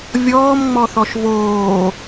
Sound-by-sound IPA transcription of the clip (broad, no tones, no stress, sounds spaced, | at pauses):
vʲ ɔː m ŋ͡m ɔ θ ɔ ʃ v oː